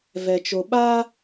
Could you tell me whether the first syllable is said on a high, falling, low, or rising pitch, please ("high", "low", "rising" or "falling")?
low